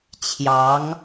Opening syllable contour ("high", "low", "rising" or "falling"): rising